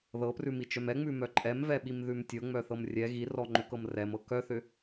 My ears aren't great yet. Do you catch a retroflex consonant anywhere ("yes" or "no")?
no